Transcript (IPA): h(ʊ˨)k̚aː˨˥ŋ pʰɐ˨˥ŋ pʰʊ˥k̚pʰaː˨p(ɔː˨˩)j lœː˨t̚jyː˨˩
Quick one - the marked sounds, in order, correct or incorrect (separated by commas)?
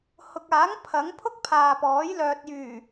correct, incorrect